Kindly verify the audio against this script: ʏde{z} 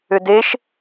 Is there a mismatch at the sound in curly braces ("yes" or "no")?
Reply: yes